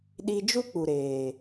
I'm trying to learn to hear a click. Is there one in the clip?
no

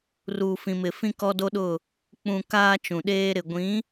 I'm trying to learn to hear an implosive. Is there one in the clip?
yes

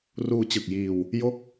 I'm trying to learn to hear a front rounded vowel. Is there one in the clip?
no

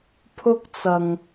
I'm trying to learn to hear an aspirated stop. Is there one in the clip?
yes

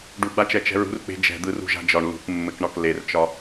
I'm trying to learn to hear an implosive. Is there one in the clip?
no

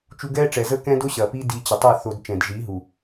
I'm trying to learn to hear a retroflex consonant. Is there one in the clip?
yes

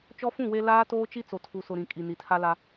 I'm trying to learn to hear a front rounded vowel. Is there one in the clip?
no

